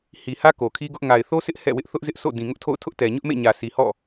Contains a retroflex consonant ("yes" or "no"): no